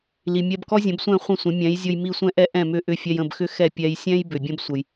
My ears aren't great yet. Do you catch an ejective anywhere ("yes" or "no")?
no